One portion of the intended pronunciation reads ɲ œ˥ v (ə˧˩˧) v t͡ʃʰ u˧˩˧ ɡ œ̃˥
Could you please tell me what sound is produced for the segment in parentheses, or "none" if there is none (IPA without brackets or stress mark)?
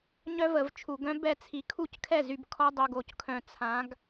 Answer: ə˧˩˧